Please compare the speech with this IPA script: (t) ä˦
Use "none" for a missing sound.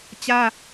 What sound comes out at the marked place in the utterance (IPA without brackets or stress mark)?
t͡ɕ